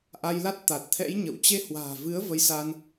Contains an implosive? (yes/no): no